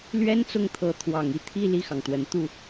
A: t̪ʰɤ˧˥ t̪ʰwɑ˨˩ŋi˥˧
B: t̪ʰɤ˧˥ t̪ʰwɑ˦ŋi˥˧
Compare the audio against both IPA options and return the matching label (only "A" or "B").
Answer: A